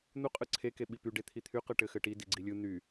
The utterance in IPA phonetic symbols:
n̪ u qʼ ɯ ǀʰ e k e ɓ i p y ɖ e t̪ʰ i t̪ʰ y q ɯ ʈ ɘ x ɘ ʈ i d i ɡ͡ǀ i lʲ ɯ n̪ y

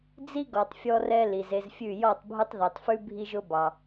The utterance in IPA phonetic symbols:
d͡z i˦ ɡ ɔ˨ tˤ fʲ ɔ˧ r ɛ˧ l i˨ z e˧ z fʲ ʉ˦˨ j ɔ˦˨ tˤ bʱ ʊ˦ tˤ ð i˨ tˤ f ʉ˦ bʱ i˦ ʒ ʊ˦ b ɑ˧

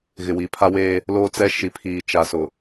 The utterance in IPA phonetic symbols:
ɣ ɪ˨ w i˨ pʰ a˦ w eː˦ | l oː˦ t͡s ɛ˦ ʃ i˨ pʰ iː˨ t͡ʃ a˨ s ʊ˨

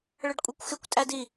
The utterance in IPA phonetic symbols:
ɭ ə ɖ kʷʼ i kʷ x ɪ kʷ tʼ æ d i

